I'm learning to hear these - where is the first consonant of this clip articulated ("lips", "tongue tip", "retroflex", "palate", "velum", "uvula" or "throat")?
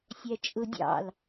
tongue tip